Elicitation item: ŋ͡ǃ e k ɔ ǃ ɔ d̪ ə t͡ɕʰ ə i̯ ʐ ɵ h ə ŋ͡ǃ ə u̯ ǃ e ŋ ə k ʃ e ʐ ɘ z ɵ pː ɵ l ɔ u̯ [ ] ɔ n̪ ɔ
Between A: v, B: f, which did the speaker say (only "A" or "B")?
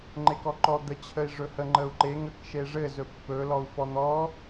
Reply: B